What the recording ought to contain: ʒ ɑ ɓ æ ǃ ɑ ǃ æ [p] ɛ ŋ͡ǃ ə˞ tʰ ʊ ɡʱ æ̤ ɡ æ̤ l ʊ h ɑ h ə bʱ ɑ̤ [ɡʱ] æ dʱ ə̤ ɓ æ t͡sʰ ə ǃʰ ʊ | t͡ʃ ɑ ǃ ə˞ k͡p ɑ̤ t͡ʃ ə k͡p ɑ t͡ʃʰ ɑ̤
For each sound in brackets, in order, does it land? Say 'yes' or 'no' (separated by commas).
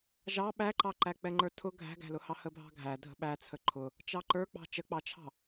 no, yes